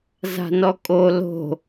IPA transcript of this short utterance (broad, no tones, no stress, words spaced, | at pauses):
za̤nɔkʼo lo̤